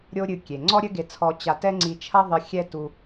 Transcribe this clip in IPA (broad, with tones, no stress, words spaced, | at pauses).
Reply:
ɾʲo˥ɾʲɨ˧ kʲe˩ ŋ͡ǀɔ˥ɾʲɘ˥ɡe˧t͡sʰɔ˧ t͡ɕa˧tɛ˥ ŋ͡ǀi˧t͡ʃʰɐ˥ ðˤɨ˧xʲɛ˥tu˧